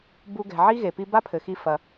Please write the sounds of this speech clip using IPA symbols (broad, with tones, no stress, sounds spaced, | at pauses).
b u˧ ɡ ɛ̤˩ ʕ i˥ ɣ e˩ p i˥ b a˥ pʰ ɘ˩ x i˧ f ɐ˩